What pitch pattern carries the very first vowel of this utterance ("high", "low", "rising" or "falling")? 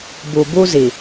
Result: low